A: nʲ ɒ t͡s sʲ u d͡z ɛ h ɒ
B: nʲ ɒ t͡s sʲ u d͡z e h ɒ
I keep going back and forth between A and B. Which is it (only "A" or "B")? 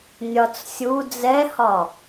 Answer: A